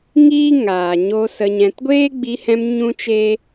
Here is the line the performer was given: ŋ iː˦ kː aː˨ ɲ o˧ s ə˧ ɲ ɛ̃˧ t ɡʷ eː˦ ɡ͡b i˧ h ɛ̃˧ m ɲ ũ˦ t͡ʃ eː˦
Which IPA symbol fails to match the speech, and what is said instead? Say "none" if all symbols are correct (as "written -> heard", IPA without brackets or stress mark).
kː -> ŋ